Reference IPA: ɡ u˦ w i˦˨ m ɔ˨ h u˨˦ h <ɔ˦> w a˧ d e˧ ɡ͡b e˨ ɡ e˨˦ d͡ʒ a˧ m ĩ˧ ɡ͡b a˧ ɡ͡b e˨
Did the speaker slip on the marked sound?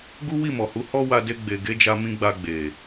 no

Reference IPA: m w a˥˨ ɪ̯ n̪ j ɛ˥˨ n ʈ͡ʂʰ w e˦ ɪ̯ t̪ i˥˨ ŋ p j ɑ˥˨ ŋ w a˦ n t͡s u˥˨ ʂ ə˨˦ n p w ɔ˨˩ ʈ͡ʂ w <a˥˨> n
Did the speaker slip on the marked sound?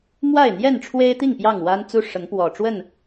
yes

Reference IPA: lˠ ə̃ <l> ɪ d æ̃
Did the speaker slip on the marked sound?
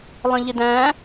yes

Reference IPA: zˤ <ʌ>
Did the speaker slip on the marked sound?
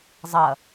no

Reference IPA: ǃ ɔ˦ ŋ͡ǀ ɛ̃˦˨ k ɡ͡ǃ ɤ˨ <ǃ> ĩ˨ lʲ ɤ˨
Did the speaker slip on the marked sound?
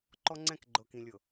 yes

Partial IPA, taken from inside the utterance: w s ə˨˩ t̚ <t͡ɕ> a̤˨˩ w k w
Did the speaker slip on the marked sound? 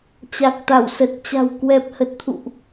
no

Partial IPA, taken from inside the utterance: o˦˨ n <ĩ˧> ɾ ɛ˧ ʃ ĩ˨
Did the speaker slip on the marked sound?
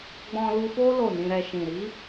no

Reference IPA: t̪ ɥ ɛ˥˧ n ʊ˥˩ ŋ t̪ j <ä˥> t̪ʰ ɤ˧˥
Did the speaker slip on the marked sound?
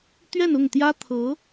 no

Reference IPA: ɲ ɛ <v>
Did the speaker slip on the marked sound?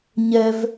no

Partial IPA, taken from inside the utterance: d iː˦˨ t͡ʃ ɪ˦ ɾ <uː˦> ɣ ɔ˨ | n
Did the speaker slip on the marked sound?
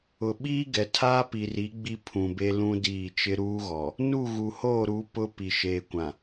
no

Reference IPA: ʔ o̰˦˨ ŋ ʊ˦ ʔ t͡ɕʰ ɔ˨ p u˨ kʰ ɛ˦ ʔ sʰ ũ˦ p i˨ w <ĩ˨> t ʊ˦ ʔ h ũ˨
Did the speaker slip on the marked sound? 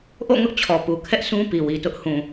yes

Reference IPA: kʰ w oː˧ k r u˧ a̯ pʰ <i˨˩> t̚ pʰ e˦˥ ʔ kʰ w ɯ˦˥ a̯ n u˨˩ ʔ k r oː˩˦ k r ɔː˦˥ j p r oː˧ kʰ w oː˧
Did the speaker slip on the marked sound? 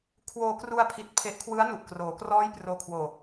yes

